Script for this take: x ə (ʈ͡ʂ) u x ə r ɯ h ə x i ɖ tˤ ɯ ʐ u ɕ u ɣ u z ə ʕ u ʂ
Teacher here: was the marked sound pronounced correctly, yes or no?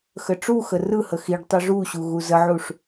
yes